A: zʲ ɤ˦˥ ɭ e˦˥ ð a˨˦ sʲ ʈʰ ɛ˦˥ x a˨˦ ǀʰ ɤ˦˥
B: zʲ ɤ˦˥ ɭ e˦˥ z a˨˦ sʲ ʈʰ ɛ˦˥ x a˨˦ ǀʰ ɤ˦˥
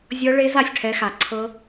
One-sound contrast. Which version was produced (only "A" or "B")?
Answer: B